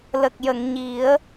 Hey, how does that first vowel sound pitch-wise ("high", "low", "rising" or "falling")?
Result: low